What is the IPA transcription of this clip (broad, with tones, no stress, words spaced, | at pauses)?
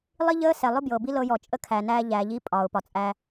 lˠi˦ʎəː˦sɛ˨ lˠʊ˦bjɤ˨bi˦ lɤ˦ jɔ˨t͡ʃʼə˦ kʰæ˨næː˦ʎæː˨ ʎi˦pʼɒː˨ʊ̯pɒ˨ t͡sʼæ˦